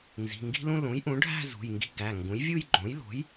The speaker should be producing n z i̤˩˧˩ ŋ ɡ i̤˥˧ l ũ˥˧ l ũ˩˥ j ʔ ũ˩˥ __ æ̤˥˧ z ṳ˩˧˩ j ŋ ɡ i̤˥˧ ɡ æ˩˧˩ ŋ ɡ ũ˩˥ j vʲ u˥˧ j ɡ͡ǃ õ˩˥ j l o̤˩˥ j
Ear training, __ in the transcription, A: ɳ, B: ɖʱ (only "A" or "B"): B